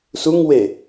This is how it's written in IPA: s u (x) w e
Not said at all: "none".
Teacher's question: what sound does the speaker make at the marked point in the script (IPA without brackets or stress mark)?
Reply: ŋ